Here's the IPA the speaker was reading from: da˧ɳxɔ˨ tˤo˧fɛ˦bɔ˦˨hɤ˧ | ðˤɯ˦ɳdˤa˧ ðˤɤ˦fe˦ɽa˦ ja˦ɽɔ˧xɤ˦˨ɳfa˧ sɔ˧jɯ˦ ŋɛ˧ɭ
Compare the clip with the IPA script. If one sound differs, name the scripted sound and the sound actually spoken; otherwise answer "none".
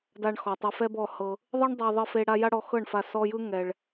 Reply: none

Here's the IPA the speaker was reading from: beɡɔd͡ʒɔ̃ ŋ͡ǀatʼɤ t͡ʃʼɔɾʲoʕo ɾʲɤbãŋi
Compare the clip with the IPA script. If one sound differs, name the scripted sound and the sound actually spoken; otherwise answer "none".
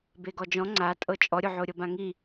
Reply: none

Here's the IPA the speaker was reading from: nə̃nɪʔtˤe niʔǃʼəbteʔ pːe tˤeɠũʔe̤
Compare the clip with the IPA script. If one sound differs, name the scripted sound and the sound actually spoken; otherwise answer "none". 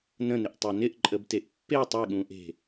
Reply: i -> ɪ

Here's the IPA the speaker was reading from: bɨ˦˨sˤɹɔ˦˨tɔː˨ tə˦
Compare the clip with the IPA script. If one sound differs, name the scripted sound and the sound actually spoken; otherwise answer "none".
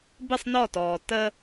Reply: ɹ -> n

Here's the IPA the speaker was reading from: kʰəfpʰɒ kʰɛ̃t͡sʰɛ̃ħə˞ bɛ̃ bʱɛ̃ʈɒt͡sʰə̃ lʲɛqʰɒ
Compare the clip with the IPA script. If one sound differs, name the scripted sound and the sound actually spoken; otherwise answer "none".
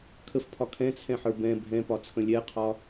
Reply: ʈ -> p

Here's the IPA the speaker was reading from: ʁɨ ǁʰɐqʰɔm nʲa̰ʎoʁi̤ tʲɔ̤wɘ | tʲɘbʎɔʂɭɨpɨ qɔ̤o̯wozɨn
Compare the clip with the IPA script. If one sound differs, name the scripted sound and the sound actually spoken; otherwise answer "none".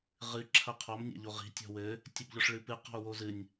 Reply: n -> nʲ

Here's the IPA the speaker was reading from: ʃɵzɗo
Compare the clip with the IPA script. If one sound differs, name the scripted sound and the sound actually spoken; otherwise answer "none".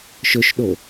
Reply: z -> ʃ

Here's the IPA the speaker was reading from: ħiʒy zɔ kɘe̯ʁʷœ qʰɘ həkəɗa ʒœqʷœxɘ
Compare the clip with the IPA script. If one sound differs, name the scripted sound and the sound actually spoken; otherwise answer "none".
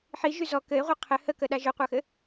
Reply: none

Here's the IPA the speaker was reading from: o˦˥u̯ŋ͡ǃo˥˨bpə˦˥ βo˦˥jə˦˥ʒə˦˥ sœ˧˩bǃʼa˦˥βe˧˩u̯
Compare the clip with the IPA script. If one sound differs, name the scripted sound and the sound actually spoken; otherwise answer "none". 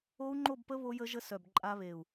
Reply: none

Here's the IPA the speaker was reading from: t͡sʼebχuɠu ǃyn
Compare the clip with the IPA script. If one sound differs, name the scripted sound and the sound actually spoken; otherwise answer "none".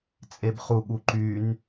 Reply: none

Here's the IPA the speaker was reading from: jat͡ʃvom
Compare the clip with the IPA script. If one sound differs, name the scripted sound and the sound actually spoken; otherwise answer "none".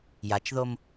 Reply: v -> ð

